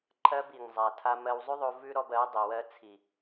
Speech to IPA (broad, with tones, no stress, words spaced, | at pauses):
ǃʰɜ˧bi˨ŋ zˤa˧tʰa˦ mɜ˧wzˤʉ˦ðˤo˧ vʉ˦ɾɔ˧b ɜ˨˦dˤi˨wɜ˧ t͡sʰi˨